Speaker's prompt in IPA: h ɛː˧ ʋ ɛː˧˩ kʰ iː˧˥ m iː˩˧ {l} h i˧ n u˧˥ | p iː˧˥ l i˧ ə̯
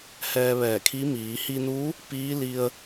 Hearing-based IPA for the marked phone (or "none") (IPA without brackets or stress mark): none